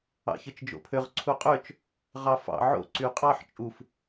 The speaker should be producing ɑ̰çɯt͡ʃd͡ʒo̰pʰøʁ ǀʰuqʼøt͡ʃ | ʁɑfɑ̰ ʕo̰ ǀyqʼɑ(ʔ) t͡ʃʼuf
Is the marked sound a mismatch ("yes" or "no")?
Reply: yes